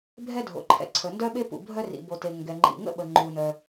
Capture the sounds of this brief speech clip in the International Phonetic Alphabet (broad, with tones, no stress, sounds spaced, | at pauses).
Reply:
bʱ ɛ˥ dʱ o̰˩ ǃʰ ɛ̰˩ ǀʰ ə˩ n d œ˥ ɓ e˥ p ṵ˩ bʱ œ˥ r ḭ˩ b o˩ t e˩ ŋ ɡ ɛ˩ ŋ͡ǃ ḭ˩ ŋ ə̰˥ ɓ ə˩ ŋ͡ǃ u˩ n œ˩